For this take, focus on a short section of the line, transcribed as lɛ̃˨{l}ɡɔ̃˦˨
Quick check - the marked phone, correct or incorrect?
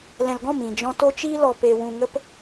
correct